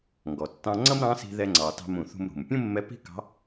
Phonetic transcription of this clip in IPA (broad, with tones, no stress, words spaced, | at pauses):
ŋɡɔ˩ tːɑ̃˧ŋ͡ǀʌ˥m ɾɑ̃˧˥si̤˧ðɛ˧ ŋ͡ǀɑ˩˧tɑ̤˧mũ˩ θṳ˧mɾṳ˩m pʲũ˥mːɛ˧˥pi̤˥kɑ̤˧˥